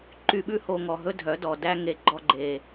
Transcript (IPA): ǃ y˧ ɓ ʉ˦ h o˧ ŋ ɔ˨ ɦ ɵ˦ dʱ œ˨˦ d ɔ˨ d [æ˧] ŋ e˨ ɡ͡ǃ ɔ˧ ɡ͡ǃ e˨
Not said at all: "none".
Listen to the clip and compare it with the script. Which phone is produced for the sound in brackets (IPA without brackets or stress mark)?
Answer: æ˧